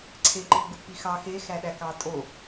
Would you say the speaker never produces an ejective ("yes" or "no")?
no